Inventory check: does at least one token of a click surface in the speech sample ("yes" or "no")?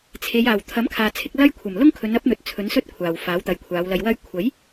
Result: no